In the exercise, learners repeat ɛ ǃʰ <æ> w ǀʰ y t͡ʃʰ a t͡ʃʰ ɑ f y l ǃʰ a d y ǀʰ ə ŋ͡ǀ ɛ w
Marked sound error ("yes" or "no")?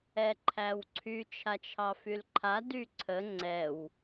no